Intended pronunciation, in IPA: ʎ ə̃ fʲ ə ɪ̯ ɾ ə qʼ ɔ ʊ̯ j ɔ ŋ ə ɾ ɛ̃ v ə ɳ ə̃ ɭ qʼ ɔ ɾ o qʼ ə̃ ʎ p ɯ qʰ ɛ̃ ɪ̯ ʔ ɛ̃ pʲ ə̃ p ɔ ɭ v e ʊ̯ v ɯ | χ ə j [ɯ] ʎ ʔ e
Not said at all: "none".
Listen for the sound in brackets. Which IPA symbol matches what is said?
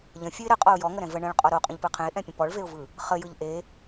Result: ɯ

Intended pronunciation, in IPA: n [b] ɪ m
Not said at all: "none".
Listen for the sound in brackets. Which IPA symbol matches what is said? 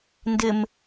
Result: d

